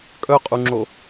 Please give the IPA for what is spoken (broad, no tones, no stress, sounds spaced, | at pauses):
kʼ œ qʼ u ŋ͡ǁ o